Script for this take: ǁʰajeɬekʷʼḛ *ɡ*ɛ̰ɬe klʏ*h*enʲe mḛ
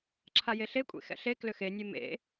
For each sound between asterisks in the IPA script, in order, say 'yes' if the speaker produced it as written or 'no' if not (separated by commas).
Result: no, no